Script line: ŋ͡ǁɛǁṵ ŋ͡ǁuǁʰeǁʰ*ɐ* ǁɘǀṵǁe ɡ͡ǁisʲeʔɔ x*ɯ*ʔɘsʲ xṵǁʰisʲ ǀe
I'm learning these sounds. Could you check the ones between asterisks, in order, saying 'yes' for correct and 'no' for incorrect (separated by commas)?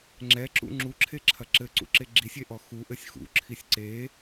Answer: yes, no